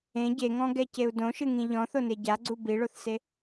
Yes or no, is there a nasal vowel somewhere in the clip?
yes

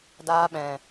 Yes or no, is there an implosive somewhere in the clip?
yes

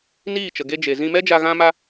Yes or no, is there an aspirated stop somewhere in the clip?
no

